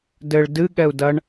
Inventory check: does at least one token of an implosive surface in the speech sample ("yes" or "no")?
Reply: yes